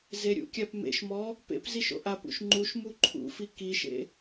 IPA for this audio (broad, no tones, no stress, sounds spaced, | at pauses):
z e ɾʲ ṵ kʲ a p m ḛ ʃ m ɔ | p ḛ p z i ʃ o̰ ʔ a p ṵ ʃ ŋ͡ǃ u ʃ m u ǃʰ ṵ f i k i ʃ ḛ